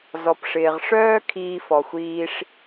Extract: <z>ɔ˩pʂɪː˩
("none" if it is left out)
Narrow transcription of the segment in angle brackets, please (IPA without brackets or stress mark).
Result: z